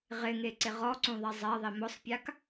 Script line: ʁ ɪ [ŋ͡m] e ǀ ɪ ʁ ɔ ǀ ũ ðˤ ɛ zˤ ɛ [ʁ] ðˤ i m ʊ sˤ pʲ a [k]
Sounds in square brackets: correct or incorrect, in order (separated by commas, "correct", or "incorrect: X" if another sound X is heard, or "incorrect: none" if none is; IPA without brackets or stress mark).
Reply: incorrect: ŋ, incorrect: none, correct